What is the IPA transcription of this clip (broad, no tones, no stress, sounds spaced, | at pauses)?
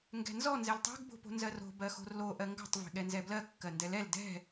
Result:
ŋ ɡ ɛ̤ n z ɔ n z ɛ l tˤ ɛ̤ ɡ b o̤ p o̤ n z ɜ r o̤ b ɜ x o̤ r l o ʔ ɜ ŋ ɡ ɔ̤ tˤ v e̤ ɠ ɛ n z ɛ b l ɜ kː ɜ n d ɛ l ɛ l d ɛ̤